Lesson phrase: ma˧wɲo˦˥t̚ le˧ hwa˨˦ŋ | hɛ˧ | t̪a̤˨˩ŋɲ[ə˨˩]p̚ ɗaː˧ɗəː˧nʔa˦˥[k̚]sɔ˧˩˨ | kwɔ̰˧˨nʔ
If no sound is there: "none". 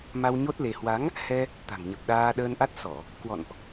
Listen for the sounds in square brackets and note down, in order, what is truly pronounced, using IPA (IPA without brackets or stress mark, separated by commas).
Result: ə˨˩, t̚